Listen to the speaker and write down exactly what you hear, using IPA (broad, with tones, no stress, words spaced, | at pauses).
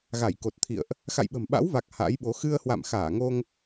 ɣa˧˩jko˨˩t̚t̪ʰḭ˧˨ə̯ʔ | xa̰˧˨jɓə̤˨˩mɓa̰˧˥wva˨˩k̚ ha̰˧˥jɓo˨˦ xɨ˧ə̯hwa̰˧˨mxaː˧˩ŋo˧ŋ